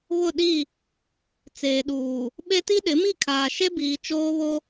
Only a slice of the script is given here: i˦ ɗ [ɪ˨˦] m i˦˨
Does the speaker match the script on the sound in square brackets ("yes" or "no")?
yes